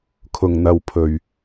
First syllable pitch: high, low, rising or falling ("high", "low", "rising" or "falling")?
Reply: low